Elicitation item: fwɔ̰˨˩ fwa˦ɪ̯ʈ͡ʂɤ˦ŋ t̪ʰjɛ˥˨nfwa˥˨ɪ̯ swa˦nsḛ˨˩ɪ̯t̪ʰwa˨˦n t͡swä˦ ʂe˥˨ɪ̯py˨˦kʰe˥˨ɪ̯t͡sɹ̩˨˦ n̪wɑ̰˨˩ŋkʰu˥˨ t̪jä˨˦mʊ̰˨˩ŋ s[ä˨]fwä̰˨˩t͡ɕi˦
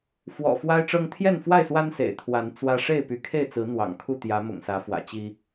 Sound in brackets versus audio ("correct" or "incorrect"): incorrect